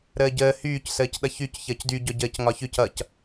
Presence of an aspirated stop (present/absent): absent